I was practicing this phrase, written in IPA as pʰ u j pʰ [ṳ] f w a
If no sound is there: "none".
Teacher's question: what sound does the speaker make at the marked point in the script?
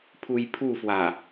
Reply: u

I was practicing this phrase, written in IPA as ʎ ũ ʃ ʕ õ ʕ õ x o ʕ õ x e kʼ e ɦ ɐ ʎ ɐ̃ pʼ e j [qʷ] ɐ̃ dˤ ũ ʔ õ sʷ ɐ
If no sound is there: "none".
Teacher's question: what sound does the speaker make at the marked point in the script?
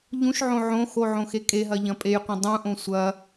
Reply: qʷ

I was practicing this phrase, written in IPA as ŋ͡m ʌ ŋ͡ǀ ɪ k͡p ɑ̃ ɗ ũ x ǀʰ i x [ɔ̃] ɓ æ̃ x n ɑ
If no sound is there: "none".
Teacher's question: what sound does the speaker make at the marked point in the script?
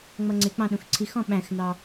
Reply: ɔ̃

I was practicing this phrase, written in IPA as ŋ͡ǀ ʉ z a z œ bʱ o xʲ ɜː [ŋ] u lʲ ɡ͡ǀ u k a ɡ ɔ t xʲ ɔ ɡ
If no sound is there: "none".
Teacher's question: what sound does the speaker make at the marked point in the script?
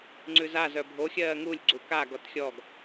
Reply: ŋ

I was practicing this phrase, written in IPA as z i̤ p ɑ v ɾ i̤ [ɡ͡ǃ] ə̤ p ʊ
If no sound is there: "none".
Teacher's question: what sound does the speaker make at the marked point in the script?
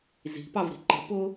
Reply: ǃ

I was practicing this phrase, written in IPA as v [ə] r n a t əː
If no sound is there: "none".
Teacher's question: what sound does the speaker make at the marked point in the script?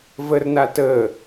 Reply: ə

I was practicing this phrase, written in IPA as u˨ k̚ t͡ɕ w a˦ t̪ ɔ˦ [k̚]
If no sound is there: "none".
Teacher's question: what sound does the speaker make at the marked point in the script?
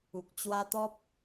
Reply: p̚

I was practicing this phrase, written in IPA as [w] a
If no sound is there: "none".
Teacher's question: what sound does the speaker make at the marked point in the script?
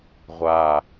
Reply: ʁʷ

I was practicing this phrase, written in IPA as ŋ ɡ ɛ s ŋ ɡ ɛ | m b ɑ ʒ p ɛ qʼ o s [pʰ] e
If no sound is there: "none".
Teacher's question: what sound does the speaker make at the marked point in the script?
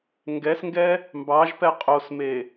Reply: m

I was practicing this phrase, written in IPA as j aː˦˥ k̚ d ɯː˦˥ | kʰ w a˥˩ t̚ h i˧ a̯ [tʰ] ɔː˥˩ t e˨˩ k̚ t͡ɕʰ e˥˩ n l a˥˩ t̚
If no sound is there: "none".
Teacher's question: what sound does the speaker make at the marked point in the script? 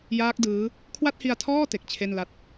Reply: tʰ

